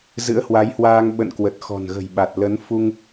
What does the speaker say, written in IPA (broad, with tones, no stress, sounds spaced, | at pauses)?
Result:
z ɨ̰˧˥ ə̯ h w a˨˦ j h w aː˧ ŋ ɓ ə̰˧˨ n k w ə˨˩ t̚ x ɔ̤˨˩ n ɣ ə̤˨˩ j ɓ a˨˩ t̚ l ə˨˦ n f u˧ ŋ